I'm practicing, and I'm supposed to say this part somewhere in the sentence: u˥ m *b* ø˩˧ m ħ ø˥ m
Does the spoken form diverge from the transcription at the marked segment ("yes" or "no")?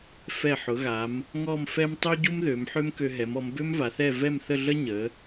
yes